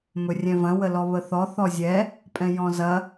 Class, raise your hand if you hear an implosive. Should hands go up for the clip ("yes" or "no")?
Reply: no